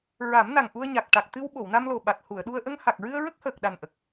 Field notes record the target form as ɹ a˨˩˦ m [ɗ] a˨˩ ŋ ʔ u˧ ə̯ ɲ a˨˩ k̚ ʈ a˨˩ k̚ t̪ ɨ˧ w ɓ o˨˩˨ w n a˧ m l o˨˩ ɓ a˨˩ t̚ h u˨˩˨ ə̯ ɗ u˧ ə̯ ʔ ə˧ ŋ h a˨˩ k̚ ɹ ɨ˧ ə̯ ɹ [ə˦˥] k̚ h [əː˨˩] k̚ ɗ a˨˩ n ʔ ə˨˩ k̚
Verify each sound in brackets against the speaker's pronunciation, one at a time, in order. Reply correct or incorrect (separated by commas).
incorrect, correct, correct